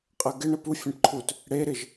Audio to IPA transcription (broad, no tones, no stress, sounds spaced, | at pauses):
qʼ ɜ ɡ ɪ ɳ ə p u fʲ ɛ̃ ʈ ǃʰ u t | ɽ e ɾ ɪ ʒ